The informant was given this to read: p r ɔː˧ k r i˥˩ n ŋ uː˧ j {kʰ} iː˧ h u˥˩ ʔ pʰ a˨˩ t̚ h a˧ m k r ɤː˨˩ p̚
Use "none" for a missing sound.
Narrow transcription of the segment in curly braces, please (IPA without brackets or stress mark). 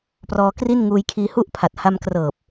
kʰ